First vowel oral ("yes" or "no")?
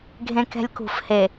no